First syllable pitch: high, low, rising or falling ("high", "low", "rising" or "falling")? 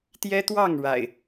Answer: high